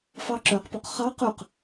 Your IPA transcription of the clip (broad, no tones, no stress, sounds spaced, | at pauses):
f ɑ ǁ œ q p o q χ ɑ q ʉ q